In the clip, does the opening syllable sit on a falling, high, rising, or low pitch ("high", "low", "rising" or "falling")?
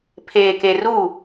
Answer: low